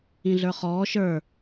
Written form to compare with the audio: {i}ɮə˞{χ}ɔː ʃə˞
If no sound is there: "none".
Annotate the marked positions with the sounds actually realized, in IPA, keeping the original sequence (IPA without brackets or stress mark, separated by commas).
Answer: ĩ, χ